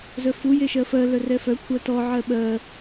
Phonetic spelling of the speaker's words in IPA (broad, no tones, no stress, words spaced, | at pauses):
zœfu jeʃɜfɜ lœrɛfœ kʷʰɜtɔ ʕɜɓɜ